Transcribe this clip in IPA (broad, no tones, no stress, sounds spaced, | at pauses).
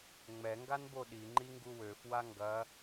ŋ͡m ɛ ŋ ɡ a n b o ɗ i ŋ͡ǃ i ŋ ɡ u w ø f w a ŋ ɡ ɐ